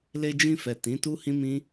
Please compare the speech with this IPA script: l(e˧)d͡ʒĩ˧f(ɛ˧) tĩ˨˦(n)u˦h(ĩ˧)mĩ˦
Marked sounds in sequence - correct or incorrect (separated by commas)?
correct, incorrect, incorrect, incorrect